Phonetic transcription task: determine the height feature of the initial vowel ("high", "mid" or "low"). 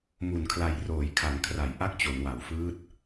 high